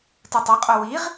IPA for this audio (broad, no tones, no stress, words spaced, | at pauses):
tɯtˤʌqʼo wiʁ